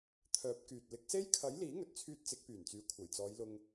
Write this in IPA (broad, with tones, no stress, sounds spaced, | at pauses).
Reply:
t̪ʰ œː˨˥ p̚ k yː˨ t̚ l ɪ˨˥ k̚ s e˥ j kʰ ɐ˨˥ j l iː˨˥ ŋ ɵ˨ t̚ t͡sʰ yː˧ t̚ t͡s ɪ˨˥ k̚ p yː˨˩ n t͡s yː˨ kʷʰ ɐ˨˩ j t͡s ɔː˨˧ j l ʊ˧ ŋ